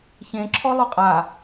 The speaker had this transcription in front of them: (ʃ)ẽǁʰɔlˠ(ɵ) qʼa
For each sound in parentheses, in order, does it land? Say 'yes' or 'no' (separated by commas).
no, yes